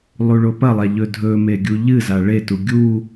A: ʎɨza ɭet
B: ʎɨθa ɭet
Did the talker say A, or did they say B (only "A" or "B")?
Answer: A